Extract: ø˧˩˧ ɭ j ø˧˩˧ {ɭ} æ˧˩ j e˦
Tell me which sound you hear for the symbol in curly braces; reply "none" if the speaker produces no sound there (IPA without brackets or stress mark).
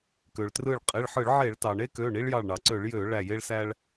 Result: ɭ